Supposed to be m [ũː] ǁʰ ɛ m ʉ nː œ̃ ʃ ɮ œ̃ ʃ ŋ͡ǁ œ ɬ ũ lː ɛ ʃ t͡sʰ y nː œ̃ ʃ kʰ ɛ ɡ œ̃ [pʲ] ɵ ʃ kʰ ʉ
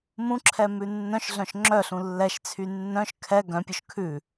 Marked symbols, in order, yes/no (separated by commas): no, yes